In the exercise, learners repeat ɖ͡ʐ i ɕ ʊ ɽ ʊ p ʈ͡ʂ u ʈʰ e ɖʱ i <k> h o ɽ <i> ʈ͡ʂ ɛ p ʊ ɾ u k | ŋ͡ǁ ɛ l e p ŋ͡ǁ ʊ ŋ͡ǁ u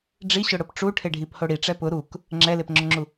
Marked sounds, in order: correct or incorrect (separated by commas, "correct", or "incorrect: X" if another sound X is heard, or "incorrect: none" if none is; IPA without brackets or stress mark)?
incorrect: p, correct